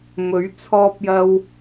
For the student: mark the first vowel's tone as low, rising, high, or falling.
rising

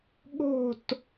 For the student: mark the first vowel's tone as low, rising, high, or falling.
falling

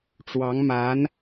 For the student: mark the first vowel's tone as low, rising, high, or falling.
rising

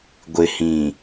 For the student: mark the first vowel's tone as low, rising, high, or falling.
low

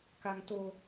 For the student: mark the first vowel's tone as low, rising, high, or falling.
high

